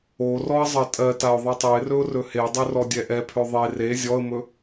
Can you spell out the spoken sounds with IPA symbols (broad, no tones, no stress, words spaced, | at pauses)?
orɔə̯ zˤɜtʼɜtaʊ̯ ðˤitˤɵɪ̯rɵʊ̯ rɵhedˤø rɔdʲɛʔɛpʰø ðˤe re zʲɔə̯mɵ